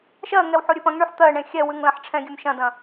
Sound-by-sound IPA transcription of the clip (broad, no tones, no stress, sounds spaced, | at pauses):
ʃ ɜ ŋ ɛ w ħ o ɾʲ ʉ p ɐ̃ ŋ ɳ y ħ t̪ ɜ ɳ ẽ xʲ ɛ w ʉ ŋ l ɐ̃ ħ ʈ͡ʂʰ ɛ̃ ɡʲ ʉ m ʃ ɐ̃ d ɐ̃